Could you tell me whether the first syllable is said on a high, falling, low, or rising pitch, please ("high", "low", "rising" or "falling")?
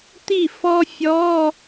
falling